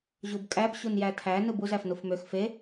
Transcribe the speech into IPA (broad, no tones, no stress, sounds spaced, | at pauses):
ʑ u b kʼ æ b ɕ u n j æ tʰ æ n ɯ b u z æ f n u f m ø x f e